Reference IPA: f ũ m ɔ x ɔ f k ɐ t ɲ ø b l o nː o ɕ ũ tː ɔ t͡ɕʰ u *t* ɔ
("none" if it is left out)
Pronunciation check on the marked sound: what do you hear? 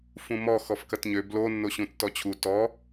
t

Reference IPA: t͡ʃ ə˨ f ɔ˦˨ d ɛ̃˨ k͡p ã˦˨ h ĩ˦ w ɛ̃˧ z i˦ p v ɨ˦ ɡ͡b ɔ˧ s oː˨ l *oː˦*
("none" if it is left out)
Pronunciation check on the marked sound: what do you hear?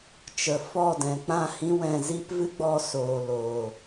oː˨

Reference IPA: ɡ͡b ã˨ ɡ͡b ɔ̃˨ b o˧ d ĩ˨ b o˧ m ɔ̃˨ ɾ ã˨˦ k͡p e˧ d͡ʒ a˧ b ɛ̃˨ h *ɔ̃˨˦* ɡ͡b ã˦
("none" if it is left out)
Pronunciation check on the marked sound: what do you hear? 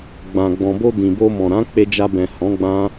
ɔ̃˨˦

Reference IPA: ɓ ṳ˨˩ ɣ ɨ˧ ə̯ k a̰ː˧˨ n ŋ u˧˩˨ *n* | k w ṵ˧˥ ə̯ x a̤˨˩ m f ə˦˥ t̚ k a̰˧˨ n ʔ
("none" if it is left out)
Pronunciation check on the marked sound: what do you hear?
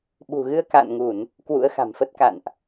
n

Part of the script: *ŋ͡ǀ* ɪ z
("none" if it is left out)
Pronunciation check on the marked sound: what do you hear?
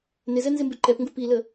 n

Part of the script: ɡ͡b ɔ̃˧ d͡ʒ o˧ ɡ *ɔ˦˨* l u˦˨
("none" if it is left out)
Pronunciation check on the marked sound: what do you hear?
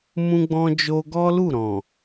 ɔ˦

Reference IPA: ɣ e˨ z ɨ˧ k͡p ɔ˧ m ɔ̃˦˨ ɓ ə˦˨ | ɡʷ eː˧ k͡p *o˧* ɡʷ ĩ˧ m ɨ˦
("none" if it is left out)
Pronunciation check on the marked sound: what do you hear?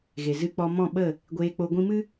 o˧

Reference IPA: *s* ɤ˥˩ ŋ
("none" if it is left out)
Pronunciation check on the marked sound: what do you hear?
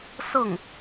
s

